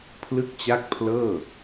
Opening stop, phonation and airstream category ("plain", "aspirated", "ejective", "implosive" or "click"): aspirated